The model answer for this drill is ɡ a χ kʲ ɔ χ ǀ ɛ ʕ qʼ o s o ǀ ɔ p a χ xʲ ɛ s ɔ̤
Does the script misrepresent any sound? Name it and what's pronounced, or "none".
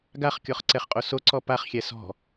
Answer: ʕ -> χ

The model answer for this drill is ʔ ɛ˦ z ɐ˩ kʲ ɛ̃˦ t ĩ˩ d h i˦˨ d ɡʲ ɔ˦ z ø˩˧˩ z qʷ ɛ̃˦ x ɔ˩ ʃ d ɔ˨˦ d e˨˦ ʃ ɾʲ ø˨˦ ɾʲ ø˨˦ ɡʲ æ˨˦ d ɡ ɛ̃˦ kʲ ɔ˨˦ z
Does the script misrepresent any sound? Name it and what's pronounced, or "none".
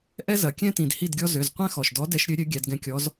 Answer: e˨˦ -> ɛ˨˦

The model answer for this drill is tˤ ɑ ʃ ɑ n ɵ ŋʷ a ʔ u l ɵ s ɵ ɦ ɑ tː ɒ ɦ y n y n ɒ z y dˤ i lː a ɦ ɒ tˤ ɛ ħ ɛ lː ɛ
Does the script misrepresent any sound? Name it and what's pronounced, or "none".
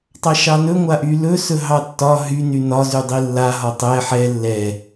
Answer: u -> y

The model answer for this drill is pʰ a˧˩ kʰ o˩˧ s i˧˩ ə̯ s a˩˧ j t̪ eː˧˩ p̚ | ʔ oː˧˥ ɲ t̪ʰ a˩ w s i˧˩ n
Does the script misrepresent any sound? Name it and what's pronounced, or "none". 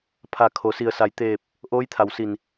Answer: ɲ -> j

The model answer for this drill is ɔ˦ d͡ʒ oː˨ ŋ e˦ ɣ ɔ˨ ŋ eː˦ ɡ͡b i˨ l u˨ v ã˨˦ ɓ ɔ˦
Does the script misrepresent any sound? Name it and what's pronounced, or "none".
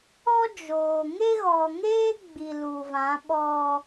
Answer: none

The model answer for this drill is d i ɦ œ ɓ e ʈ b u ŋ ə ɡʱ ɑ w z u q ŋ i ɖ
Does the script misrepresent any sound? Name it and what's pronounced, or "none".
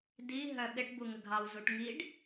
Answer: q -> ʈ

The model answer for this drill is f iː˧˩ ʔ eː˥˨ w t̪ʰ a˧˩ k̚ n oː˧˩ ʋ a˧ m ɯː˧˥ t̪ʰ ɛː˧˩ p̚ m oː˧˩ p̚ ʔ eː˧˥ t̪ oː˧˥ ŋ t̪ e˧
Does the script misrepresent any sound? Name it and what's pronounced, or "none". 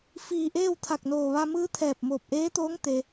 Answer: none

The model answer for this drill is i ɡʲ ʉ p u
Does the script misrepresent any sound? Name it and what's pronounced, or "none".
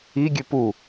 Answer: none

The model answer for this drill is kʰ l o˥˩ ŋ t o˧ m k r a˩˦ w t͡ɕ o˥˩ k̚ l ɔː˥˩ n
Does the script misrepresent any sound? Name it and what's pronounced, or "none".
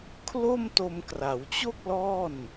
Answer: ŋ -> m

